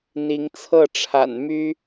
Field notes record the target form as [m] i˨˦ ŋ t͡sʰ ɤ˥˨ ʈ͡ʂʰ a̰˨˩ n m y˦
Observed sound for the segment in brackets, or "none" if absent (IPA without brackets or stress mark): n̪